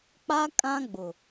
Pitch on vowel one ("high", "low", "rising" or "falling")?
high